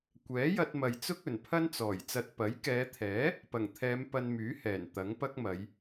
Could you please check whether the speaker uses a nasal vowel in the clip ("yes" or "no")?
no